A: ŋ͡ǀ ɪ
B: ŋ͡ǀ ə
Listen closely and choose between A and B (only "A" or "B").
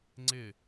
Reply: A